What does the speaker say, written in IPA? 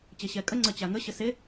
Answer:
t͡ɕ e ɕ ɛ kʼ ə ŋ͡ǀ ə t͡ɕ a ŋ ə ɕ ə s e

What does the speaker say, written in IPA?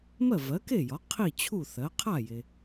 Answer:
m ɜ˥˩ v ɜ˩˥ k e˥˩ j ɒ˩˥ qʰ i˥˩ t͡ɕʰ u˥˩ θ ɜ˩˥ qʰ a˥˩ j e˩

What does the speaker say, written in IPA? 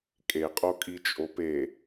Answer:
kʼ e qʼ o kʼ i t͡ʃʼ o p e

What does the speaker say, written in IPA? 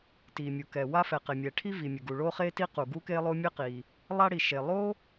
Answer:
t i˩ mʲ u˩ k ɛ˩ w a˥ f ɛ˩ q e˩ mʲ ɛ˩ ʈʰ i˥ v i˩ mʲ ɘ˩ ɡ u˩ ɭ o˥ χ e˥ t i˥ q u˩ ɡ u˥ k e˥ lˠ o˥ mʲ ɘ˥ q i˩ | lˠ a˥ ɽ i˩ ʃ e˩ lˠ o˥

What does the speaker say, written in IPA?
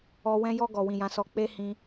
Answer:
ɔ˨ w ɛ̃˧ j ɔ˧ ɡ ɔ˨ w ĩ˨ j ã˨˦ s ɔ˧ k͡p e˦ h ĩ˧

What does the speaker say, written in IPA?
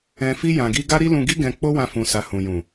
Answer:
ɛ̃˧ f i˦ j ã˧ ɡ i˦ ɡ a˦ ɾ i˦ l ũ˧ ɡ i˦ ɡ ɛ̃˧ k͡p o˦ w ã˧ f ũ˧ s a˧ h ũ˨ j ũ˨

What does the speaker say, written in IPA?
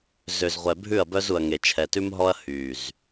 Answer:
z ø˨ z ʁʷ ɛ˨ bʱ ʉ˦˨ ɐ̯ b œ˦ z u˨ ɐ̯ ŋ e˨ t͡ʃʰ ɛ˨ t ʉ˦ m ɦ ɔ˦ ɐ̯ h yː˨ z

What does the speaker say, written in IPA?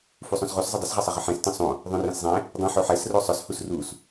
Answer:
f u sˤ õ s ʁ u s zˤ ə dˤ ə s ʁ ɪ sˤ ə ʁ ə ħ ɛ̃ s t ə̃ sˤ õ | ðˤ õ r ɛ̃ s zˤ ɛ̃ | dˤ ə̃ ħ o ħ ɛ s r o sˤ ʊ s h u s r u s

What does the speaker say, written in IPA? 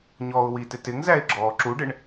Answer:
ɲ ɔː ʊ̯ w i t ɪ t ɪ ŋ z æ ɪ̯ ɡ͡ǁ ɔː ǁ u ɖ ɪ ɳ

